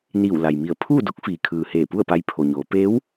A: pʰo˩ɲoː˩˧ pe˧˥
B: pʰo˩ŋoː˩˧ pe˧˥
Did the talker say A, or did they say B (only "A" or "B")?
A